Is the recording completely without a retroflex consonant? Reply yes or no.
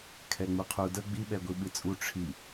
no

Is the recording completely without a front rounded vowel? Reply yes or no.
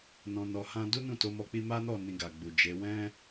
yes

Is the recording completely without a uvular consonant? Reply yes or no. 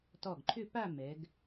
yes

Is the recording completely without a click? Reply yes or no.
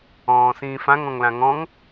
yes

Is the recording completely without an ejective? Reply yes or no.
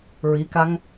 yes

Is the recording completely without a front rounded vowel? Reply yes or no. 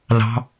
yes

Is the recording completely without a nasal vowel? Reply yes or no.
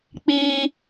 yes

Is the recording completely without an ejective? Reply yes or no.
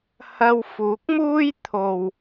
yes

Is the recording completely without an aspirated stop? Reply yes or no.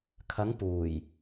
no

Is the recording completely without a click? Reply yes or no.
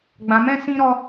yes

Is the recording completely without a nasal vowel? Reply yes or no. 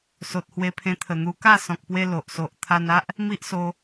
no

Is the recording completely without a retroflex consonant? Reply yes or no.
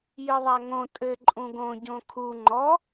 yes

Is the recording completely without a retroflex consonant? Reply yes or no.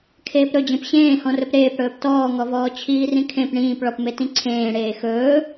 no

